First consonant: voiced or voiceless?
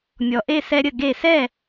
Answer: voiced